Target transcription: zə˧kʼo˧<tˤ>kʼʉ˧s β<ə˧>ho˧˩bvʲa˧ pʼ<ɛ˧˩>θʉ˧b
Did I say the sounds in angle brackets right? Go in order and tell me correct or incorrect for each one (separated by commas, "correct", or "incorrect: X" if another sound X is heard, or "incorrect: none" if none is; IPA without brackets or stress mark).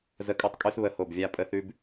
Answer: correct, incorrect: ə˧˩, incorrect: ə˧˩